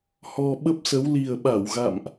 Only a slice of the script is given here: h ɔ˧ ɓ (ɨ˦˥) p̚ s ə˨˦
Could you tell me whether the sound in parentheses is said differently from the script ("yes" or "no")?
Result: yes